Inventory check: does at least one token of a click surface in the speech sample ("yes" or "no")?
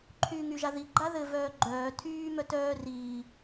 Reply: yes